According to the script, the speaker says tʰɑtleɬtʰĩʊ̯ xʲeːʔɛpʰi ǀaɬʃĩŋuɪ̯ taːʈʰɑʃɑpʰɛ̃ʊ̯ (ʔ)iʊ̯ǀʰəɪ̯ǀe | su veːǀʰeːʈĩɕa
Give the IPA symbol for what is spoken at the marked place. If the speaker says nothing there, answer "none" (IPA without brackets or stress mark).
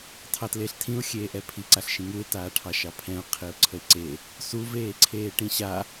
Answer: qʰ